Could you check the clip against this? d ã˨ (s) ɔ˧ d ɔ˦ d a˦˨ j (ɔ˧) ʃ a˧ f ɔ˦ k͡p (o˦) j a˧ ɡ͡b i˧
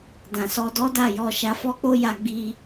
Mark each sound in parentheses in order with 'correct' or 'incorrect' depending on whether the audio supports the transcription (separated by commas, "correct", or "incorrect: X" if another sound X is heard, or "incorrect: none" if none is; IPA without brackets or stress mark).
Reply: correct, correct, correct